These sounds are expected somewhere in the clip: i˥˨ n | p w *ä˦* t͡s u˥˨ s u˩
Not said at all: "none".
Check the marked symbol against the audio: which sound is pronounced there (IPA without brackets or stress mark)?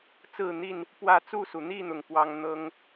ä˥˨